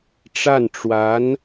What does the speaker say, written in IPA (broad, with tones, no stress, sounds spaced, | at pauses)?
ʈ͡ʂ a˥˩ n ʈ͡ʂ w a˧˥ n